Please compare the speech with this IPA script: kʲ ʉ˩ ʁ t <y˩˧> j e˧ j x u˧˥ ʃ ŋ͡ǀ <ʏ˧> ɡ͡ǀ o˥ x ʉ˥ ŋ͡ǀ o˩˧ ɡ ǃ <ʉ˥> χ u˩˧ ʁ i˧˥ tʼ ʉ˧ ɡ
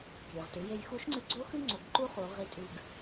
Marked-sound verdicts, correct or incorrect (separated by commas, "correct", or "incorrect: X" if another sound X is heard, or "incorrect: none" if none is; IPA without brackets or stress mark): incorrect: ɨ˩˧, incorrect: ɨ˧, incorrect: u˥